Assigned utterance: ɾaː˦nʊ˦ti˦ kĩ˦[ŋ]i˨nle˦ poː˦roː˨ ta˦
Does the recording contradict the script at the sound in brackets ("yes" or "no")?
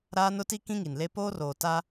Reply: no